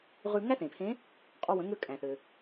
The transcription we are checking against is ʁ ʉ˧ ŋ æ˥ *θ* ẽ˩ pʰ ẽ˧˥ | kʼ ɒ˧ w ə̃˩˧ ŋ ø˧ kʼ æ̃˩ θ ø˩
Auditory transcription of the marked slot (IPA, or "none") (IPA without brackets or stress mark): θ